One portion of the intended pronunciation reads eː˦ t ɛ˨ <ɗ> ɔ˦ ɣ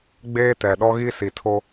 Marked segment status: correct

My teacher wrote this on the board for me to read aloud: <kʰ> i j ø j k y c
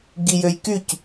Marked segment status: incorrect: ɡ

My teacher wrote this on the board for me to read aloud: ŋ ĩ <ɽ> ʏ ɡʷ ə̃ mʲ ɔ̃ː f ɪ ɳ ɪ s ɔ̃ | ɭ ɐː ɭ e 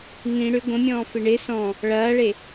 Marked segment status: correct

